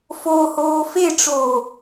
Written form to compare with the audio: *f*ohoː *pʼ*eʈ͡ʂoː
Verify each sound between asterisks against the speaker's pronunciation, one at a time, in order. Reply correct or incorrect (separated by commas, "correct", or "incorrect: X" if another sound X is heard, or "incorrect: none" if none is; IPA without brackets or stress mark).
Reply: correct, incorrect: f